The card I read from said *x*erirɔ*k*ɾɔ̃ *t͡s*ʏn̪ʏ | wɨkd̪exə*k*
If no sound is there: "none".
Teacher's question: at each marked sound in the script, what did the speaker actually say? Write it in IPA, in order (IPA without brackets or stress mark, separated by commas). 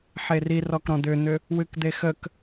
ħ, k, d̪, k